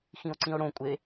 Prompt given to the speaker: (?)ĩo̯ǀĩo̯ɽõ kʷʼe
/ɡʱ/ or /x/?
x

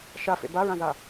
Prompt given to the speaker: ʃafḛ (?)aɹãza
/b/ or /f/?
b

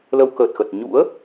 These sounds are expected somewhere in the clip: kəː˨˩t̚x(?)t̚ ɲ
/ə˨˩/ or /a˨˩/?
ə˨˩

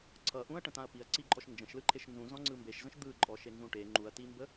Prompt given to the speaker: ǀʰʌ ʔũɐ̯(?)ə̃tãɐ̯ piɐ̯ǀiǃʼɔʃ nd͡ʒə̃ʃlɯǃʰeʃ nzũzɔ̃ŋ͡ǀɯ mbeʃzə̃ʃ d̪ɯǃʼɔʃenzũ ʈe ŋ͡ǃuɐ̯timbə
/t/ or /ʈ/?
ʈ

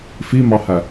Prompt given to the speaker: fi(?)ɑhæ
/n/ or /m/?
m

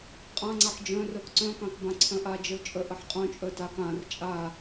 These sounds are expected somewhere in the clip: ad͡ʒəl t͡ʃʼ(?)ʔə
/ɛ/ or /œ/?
œ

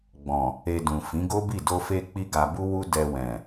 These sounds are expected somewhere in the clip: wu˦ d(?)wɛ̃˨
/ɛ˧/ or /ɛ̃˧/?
ɛ˧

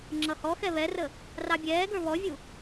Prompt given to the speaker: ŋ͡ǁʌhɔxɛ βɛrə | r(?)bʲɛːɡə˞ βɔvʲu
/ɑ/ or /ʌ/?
ɑ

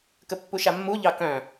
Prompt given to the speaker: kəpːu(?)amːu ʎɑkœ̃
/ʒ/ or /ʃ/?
ʃ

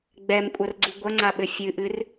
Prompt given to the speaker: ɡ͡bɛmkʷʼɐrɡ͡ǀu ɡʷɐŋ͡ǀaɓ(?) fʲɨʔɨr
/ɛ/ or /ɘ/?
ɘ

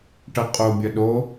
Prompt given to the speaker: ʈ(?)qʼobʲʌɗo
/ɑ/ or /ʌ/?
ʌ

